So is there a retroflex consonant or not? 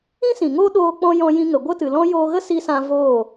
no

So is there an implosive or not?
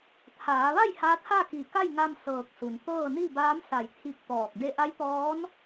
no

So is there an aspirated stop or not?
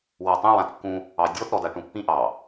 no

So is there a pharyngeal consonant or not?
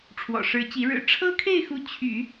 no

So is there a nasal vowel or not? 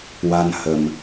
no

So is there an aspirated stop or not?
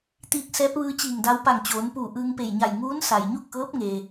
no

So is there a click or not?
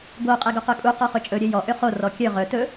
no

